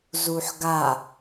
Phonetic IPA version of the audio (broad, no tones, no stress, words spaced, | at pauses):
zuħɡa